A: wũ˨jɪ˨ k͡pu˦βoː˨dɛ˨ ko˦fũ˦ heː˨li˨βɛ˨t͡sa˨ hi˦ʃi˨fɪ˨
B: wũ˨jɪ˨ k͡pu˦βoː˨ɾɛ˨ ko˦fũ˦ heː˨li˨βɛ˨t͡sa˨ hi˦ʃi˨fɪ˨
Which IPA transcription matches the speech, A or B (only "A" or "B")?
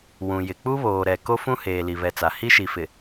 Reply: B